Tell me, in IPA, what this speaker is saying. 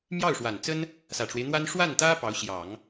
m j ɑ˥˩ ʊ̯ ʂ w a˨˩ n t͡s ə˥ n | s ä˨˩ ʈ͡ʂ w e˦ ɪ̯ n̪ w a˥ n ʂ w a˥˩ n t̪ ä˥ p ɑ˧˥ ʊ̯ ɕ j ɑ˨˩˦ ŋ

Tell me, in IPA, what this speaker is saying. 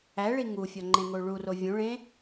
æ ɭ i ŋ u fʲ ɒ ŋ͡ǃ ẽ ŋ o ɭ u r o vʲ ũ ɭ ẽ

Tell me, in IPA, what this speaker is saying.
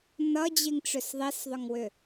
n ʌ d͡ʑ i ŋ ʈ͡ʂ ʏ s ðˤ i s ðˤ ʏ ŋ w ʏ

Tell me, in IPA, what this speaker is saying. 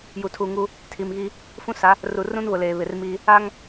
j u˨ tʰ u˨ ŋ u˦ | tʰ i˨ m ɣ i˦ | f ũ˦ s a˨˦ | r u˨ r ũ˦ n β ʊ˨ l eː˨ β ɪ˨ r m i˦ | a˦ ŋ

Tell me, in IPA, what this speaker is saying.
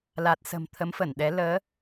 l a˨˩ t̚ s ə̤˨˩ m t̪ʰ ə˨˦ m f ə˧˩ n ɗ ɛ˨˦ l əː˨˦

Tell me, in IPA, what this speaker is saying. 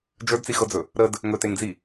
d͡ʒ ə˞ d t͡s i x ɤ d͡z ɵ | ɾ ə d | ŋ ɵ t e ŋ d͡z i

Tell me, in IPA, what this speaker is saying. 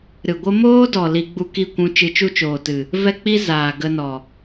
ɾ ɨ˨ ɡʷ ə˦ m oː˦ d ɔ˨ l i˧ ɡ͡b u˦ k i˦˨ kʷ ũ˧ t͡ʃ ɨ˧ t͡ʃ u˦ t͡ʃ oː˨ t ɨ˨ | v ɛ˦ k͡p i˦ z aː˨ ɡ ə˧ n ɔ˨

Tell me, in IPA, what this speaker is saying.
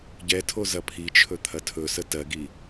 ɟ ɛ tʰ o z ɐ pʰ i t͡ʃʰ ɵ t̪ʰ ɐ tʰ ɵ s ə t ɜ ɡ i

